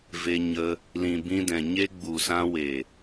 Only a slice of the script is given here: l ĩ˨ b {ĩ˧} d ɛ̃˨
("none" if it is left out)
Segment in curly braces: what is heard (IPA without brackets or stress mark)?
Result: ĩ˧